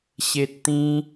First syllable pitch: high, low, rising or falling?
high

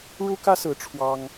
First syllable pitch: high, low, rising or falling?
high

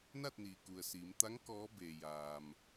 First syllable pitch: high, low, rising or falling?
falling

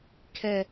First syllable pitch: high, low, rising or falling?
low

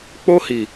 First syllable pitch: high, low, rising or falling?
high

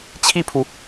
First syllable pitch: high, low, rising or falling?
falling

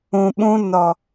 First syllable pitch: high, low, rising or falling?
low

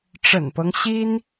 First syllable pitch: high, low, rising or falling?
low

